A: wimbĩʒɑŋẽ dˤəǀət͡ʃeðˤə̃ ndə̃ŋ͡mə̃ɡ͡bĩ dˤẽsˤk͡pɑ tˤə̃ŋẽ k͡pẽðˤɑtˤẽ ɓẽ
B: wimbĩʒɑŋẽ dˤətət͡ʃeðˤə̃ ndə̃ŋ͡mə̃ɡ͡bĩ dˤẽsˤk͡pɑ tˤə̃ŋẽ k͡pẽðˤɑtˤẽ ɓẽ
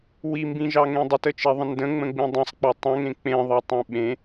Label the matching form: B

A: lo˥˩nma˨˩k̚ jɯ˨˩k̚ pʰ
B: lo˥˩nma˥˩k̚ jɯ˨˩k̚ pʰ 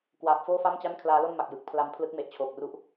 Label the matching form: A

